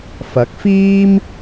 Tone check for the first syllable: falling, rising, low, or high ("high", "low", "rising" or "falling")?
rising